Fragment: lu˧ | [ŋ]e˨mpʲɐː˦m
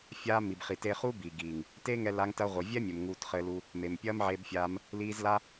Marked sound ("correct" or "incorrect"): incorrect